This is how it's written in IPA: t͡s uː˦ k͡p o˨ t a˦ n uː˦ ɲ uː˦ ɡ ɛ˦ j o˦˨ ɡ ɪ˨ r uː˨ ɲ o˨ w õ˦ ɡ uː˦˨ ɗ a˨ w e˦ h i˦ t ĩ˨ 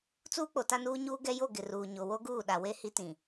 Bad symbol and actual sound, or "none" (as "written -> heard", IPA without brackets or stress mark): õ˦ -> o˦